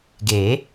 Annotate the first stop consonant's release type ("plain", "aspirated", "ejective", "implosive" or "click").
plain